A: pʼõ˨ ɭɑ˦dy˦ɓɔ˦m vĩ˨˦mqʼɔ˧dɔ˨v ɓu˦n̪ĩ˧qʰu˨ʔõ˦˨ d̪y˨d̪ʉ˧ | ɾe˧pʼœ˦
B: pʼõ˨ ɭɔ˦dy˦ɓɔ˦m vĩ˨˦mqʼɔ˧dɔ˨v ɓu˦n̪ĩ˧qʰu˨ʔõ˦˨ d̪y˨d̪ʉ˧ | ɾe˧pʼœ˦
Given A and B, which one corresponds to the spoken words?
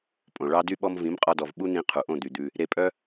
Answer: A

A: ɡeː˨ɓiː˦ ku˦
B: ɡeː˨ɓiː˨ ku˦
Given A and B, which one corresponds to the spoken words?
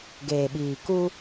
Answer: B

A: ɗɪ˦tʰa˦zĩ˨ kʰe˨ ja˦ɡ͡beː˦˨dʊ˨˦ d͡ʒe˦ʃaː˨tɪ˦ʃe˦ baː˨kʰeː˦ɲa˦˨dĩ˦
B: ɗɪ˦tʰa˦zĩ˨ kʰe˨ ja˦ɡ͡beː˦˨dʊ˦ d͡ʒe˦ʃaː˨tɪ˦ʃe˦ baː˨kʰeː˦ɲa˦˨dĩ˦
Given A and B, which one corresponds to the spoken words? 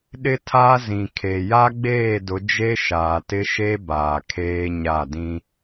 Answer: A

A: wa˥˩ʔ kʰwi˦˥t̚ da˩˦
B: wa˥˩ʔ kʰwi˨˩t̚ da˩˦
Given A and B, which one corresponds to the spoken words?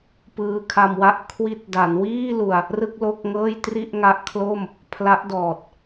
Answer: A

